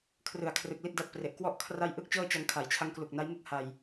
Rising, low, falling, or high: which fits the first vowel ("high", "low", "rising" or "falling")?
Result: low